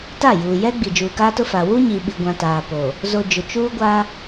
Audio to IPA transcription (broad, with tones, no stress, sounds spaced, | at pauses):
t a˦˨ j uː˨ j ɛ˦ ɡ͡b i˨ d͡ʒ uː˨ k aː˦ t ʊ˦ f a˨ w u˦ ɲ i˨ ɓ i˨ ɡʷ ã˨ t aː˨ p o˨ | z o˨ d͡ʒ ʊ˨ t͡ʃ uː˦ ɡʷ a˦